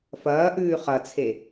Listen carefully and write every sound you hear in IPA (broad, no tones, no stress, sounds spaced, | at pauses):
f ɐː ʔ ʉː χ ɐ t͡sʰ e